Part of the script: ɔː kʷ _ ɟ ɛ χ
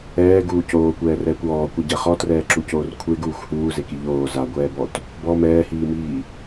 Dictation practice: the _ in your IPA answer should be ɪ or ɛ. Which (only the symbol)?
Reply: ɛ